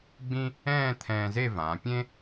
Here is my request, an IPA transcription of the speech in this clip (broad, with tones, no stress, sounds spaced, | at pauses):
ɡ͡b ĩ˥ | ɛ̃ː˥˧ t̪ʰ ɛ̃ː˧ z e˥˧ v ãː˩˧ pʲ ẽ˥